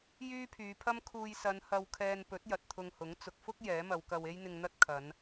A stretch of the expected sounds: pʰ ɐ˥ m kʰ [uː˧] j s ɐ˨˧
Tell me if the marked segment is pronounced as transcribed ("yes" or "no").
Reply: yes